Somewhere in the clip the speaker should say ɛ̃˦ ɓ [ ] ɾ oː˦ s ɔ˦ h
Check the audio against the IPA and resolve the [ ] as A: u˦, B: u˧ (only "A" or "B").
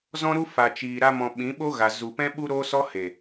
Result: A